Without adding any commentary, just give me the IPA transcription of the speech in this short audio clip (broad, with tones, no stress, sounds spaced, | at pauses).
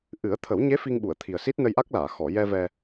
ʔ ɨ˨˩˦ ə̯ t̪ʰ ə˨˩˦ w ɲ e˧˥ f i˧ ŋ ɓ u˨˩˨ ə̯ t̪ʰ i˨˩ ə̯ s i˦˥ t̚ n ə˧ j ʔ a˦˥ k̚ l aː˨˩˨ x ɔ˨˩˨ j ɛ˧ v ɛ˧